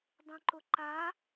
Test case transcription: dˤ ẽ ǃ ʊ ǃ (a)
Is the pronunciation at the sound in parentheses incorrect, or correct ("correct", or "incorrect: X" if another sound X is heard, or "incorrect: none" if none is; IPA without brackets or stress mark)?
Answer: correct